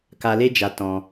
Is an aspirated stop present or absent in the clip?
absent